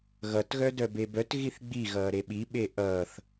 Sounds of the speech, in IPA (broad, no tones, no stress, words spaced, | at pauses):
ɣʌtɣœ dœbebœtɣiθ ɡ͡biɣʌː ɾeɓiɓe ʔʌːθ